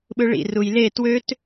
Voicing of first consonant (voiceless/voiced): voiced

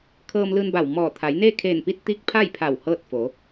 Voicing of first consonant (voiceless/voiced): voiceless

